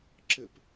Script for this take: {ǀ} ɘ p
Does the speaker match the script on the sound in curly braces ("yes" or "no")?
no